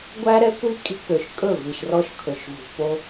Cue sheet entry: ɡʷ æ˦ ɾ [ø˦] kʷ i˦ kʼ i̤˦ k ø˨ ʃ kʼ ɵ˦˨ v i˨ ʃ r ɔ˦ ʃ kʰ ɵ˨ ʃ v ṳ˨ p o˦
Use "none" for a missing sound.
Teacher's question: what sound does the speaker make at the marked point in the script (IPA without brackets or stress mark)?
ɛ˦